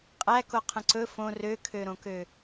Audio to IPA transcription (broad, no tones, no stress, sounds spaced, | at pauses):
qʼ æ k o qʰ ə̃ ǀ ɵ f õ r ø kʰ ø ɾ õ k ø